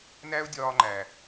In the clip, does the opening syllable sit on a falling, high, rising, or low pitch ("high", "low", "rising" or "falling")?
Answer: high